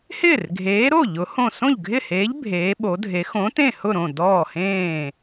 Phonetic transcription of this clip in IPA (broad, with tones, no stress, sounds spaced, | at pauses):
h ɪː˥˩ r ɡʱ eː˨˥ ɾ o˥˩ ʎ ʊ˨˥ h õ˥˩ s õ˥˩ ʎ ɡʱ ɪ˥˩ h eː˨˥ ʎ bʱ eː˨˥ ɓ o˨˥ dʱ e˨˥ x õ˨˥ t ẽ˥˩ h ʊ˥˩ ɾ õ˥˩ d ɔː˥˩ h ẽː˥˩